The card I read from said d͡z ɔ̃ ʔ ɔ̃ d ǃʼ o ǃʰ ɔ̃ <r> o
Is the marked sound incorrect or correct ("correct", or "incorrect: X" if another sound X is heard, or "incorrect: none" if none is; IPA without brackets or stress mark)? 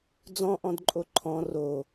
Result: correct